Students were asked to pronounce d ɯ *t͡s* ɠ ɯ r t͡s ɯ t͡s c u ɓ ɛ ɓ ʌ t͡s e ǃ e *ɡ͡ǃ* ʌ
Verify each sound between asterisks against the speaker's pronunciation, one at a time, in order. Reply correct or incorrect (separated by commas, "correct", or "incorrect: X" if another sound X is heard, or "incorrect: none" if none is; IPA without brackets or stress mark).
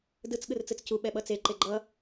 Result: correct, correct